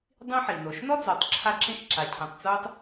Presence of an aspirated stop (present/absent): present